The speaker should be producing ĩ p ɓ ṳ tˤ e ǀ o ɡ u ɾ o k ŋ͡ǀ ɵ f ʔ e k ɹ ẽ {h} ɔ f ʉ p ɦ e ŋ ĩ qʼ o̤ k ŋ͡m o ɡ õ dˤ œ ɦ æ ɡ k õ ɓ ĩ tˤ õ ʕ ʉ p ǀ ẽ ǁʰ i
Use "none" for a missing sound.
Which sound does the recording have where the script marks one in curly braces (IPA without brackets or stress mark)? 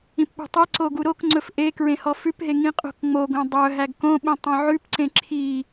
h